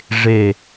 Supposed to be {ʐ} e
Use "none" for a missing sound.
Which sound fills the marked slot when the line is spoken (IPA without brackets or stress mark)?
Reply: ʐ